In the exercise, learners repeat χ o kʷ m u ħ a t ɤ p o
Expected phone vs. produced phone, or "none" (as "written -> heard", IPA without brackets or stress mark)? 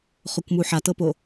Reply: none